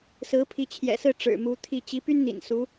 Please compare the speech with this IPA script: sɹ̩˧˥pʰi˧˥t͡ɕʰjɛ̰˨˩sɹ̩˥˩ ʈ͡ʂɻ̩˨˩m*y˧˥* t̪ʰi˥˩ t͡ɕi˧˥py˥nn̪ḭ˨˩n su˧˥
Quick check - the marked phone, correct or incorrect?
incorrect